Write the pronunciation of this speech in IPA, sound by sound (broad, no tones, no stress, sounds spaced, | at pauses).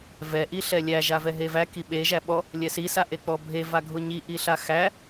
v ɛ ʔ i ɬ ɛ lʲ æ ʒ a v ɛ ɦ e v æ k i ɓ e ʒ æ ɓ ɔ | lʲ ɛ s i s a ʔ e k͡p ɔ bʱ e v a ɡʱ ʊ ɲ i ʔ i ɬ a x æ